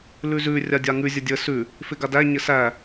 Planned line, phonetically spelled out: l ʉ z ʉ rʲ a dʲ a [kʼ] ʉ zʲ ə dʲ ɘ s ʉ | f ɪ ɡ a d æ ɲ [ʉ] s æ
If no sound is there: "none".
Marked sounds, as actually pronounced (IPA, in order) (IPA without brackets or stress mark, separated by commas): ŋ, ɘ